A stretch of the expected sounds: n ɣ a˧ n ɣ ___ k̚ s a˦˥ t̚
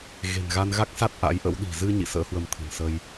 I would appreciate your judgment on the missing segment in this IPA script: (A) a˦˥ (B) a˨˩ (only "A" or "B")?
A